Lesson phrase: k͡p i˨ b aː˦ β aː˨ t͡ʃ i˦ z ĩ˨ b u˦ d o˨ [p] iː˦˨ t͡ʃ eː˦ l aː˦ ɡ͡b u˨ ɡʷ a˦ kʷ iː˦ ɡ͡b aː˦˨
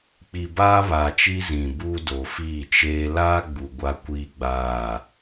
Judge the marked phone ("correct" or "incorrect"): incorrect